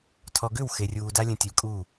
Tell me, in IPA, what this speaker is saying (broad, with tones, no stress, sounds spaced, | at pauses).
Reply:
tʰ ɔ˨ ɡ ʏ˦˨ w x e˨ rʲ uː˨ d a˦ lʲ ə̃˨ tʲ u˨ lʲ kʼ uː˦˨